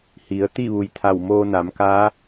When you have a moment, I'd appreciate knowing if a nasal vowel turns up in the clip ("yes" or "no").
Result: no